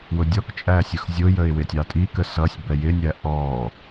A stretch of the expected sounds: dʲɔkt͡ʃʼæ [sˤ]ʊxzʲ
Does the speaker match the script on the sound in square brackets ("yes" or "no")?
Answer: no